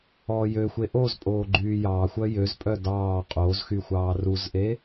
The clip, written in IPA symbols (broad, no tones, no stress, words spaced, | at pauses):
ɔːjøxʷe ʔozpʼoː ɡ͡ǃyːjɑːxʷœ jøzpʼœ dɑː qʼoːzxy xʷɑːruzʔe